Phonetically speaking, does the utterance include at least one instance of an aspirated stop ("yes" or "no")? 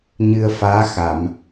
no